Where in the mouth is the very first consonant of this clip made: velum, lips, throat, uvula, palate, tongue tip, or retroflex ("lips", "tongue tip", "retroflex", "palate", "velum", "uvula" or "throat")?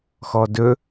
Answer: velum